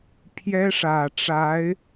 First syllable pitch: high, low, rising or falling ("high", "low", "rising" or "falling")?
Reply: high